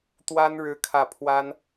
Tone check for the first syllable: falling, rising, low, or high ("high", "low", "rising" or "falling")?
high